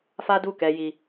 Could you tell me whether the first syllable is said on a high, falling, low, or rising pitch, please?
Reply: high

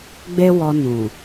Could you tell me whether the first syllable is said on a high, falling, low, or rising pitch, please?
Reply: high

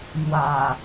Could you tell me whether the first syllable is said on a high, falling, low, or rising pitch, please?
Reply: low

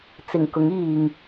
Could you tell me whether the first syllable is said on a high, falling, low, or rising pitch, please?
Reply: low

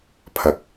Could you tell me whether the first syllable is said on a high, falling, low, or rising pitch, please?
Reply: low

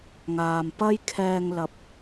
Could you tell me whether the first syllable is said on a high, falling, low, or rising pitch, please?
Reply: low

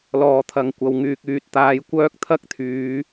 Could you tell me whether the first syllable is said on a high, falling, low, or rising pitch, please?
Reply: low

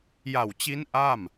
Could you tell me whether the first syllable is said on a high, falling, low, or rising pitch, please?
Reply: low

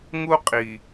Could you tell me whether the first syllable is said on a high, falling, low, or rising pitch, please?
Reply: high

